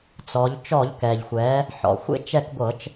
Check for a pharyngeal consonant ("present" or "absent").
present